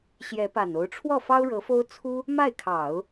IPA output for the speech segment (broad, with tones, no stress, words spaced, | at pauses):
ɕjɛ˧˥pa˨˩no˧˥ʊ̯ ʈ͡ʂʰwɔ˥˩fɑ˥ʊ̯ɻɤ˧˥fo˥ʊ̯ t͡sʰu˥ | ma˥˩ɪ̯kʰɑ˨˩˦ʊ̯